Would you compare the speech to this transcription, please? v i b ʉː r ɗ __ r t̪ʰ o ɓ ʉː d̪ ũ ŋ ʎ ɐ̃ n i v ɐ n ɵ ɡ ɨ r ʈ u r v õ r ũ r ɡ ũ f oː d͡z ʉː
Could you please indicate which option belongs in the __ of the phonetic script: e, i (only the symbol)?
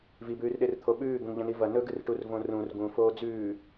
e